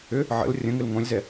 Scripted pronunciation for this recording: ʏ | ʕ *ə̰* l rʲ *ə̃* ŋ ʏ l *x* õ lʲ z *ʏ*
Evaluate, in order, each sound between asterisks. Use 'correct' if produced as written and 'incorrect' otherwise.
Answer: correct, correct, incorrect, incorrect

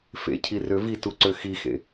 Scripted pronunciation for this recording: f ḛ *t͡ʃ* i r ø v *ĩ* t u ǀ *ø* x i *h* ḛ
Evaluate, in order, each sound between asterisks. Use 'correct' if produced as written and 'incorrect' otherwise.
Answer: incorrect, incorrect, correct, incorrect

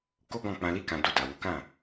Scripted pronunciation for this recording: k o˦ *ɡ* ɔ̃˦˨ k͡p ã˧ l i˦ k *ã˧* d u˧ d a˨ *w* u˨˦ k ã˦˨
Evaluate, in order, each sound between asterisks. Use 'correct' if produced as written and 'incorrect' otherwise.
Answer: correct, correct, correct

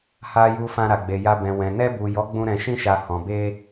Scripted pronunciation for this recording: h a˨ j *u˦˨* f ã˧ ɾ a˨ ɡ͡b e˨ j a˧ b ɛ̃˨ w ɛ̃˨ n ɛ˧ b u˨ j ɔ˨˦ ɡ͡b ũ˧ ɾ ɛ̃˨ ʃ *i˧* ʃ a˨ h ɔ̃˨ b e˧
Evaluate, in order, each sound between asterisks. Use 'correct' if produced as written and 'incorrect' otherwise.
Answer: incorrect, incorrect

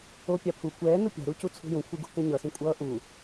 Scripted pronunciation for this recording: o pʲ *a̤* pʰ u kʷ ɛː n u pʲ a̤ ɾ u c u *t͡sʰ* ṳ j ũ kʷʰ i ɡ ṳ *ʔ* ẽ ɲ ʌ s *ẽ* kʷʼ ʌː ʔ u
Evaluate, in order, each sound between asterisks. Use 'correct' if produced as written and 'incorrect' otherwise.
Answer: incorrect, correct, incorrect, incorrect

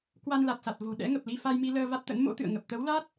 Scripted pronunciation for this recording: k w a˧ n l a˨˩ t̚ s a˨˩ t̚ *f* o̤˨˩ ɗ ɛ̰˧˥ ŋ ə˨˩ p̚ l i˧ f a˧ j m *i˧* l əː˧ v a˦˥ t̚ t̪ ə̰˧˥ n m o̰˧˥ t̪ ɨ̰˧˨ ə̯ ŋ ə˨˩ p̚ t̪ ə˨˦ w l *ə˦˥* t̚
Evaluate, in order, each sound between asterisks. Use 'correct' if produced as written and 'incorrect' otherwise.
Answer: incorrect, correct, incorrect

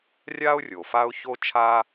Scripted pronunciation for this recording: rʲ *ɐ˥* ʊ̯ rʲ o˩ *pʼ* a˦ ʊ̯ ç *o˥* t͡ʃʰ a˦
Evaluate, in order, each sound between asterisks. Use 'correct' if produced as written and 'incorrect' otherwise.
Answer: incorrect, incorrect, incorrect

